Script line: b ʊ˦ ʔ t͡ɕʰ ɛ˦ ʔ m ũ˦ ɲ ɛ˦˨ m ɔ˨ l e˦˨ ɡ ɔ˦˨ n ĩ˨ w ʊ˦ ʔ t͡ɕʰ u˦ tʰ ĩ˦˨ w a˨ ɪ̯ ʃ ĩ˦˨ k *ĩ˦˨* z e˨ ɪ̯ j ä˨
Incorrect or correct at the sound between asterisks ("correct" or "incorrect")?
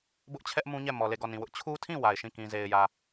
incorrect